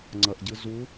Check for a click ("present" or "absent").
present